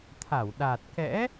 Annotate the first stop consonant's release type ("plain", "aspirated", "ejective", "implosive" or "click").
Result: aspirated